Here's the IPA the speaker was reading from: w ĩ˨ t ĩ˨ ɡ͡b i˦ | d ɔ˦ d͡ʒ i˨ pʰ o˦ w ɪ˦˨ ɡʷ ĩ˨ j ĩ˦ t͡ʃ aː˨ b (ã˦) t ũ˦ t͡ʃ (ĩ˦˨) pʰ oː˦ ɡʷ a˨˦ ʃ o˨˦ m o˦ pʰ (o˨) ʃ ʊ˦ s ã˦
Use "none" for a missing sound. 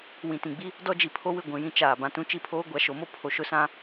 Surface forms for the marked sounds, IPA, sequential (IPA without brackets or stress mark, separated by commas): ã˨, i˦˨, o˨